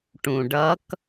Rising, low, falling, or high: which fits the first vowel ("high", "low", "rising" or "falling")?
low